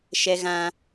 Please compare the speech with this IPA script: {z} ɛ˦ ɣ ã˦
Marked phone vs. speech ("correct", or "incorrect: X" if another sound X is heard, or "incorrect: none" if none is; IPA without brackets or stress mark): incorrect: ʃ